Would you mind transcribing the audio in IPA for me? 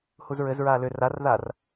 h u z ɹ ɘ z ɹ aː l ʏ r a r ð aː r

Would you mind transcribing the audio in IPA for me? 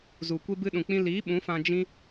z u˨ kʷ e˦ b ɨ˧ ɗ ũ˨ k͡p ĩ˧ l iː˨˦ ɓ ũ˨˦ f ã˧ d͡ʒ ĩ˦

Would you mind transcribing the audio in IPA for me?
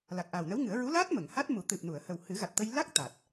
l a˨˩ k̚ ʔ aː˨˩ w n ə˧˥ w ŋ ɨ˨˩˦ ə̯ ɹ u˧˥ l aː˦˥ t̚ m ə˨˩˨ ŋ h a˦˥ t̚ m u˨˩˦ t̪ ɨ˨˩ p̚ n u˨˩˨ ə̯ h ə˨˩ w h ɨ˨˩˦ ɣ a˨˩ t̚ t̪ ə˧ j l a˦˥ k̚ t̪ a˨˩ t̚

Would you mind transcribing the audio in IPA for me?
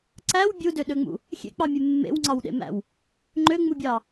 ǀ æ w bʲ u d ø ɗ ø ŋ͡m ṵ | xʲ ḛ k͡p ɑ mʲ e mː ḛ w ŋ͡ǀ ɑ w ɗ ḛ m æ̰ w | ŋ͡ǃ ø ŋ͡m u bʲ ɑ

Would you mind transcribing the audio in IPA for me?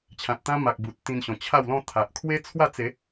t͡ɕʰ ã˨ t̚ t̪ ã˦ m a˨ k̚ b u˨ t̚ t̪ ĩ˧ n ɕ ɔ̃˨˩ t͡ɕʰ a˥˧ w l ɔ̃˥˧ t̪ʰ a˨ ʔ kʰ w e˦ t͡sʰ w a˥˧ t͡s e˨˦

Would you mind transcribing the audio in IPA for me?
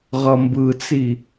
ʁ ʌ m b ɯ t͡s i

